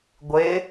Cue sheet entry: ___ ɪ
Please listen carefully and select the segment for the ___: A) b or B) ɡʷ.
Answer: B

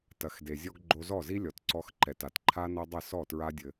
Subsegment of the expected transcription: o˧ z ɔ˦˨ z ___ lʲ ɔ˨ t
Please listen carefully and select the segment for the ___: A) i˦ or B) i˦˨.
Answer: A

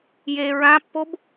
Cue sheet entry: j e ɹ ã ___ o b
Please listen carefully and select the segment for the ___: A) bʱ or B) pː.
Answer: B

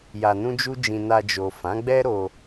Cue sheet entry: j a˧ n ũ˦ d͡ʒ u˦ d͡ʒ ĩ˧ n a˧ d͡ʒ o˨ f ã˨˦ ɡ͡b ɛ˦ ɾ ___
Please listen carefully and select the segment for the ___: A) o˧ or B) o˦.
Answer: A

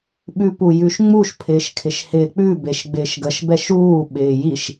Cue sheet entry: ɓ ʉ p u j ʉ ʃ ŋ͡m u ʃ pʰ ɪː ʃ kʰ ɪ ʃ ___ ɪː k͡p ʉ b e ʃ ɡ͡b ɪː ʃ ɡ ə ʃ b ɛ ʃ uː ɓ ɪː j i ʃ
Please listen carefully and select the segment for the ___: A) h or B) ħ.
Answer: A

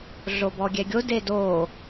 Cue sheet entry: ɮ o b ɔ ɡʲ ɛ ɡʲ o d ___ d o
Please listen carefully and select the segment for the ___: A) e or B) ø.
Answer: A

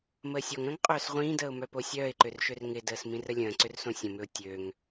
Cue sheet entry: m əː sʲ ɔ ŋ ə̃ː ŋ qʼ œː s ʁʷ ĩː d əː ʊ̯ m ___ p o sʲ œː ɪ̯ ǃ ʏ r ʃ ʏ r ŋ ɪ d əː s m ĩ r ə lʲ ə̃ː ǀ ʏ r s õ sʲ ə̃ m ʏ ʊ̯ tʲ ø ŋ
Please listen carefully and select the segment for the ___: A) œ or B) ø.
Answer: A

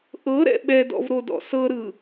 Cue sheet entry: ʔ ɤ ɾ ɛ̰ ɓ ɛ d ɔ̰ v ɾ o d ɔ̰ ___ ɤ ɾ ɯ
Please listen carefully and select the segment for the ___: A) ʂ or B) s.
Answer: B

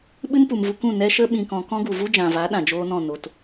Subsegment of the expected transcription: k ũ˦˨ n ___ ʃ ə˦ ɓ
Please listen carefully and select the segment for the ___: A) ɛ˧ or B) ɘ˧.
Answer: A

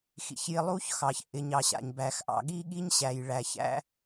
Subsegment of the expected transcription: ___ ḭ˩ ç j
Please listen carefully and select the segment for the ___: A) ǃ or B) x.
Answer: B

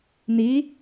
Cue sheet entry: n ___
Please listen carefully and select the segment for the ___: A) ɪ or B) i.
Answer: B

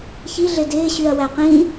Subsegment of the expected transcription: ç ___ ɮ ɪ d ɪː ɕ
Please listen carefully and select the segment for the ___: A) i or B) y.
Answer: A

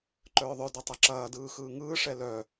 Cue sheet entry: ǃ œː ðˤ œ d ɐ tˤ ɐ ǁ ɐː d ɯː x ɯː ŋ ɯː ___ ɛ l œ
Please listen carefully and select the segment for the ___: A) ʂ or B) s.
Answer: A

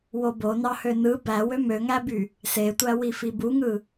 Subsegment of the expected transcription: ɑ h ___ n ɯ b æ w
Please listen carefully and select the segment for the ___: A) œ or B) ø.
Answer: B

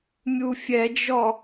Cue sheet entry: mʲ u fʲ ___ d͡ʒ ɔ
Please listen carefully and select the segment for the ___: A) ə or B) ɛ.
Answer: B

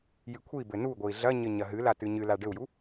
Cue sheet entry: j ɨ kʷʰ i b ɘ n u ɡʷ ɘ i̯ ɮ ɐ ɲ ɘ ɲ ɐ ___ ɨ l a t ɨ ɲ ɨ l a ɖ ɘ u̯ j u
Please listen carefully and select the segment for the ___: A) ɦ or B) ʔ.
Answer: A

